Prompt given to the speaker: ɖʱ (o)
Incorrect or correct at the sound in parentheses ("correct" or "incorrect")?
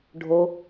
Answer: correct